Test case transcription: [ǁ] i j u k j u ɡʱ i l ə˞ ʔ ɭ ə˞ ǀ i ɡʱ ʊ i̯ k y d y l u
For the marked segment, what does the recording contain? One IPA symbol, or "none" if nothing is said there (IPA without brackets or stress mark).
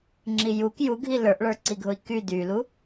ŋ͡ǁ